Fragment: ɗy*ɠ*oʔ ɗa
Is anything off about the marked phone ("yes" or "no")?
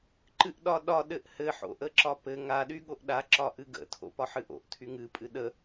no